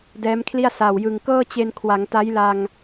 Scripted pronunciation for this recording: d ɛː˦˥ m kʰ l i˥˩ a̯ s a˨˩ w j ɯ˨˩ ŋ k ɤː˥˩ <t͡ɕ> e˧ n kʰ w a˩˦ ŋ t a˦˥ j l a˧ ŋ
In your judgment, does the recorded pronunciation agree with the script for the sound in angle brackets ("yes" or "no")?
yes